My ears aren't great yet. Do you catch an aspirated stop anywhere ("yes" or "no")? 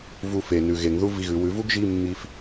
no